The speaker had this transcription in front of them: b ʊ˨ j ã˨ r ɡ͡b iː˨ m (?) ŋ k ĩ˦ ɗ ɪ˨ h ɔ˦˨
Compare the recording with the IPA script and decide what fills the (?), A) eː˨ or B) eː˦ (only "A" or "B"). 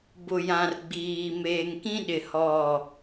A